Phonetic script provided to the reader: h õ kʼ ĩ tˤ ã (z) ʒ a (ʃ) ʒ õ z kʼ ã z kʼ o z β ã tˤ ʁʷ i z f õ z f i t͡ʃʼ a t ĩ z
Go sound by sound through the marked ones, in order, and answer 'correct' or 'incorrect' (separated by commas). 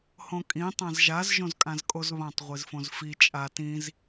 correct, incorrect